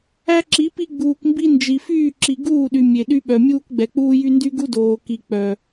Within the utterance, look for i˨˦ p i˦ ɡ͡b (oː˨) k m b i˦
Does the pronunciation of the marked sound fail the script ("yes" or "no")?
yes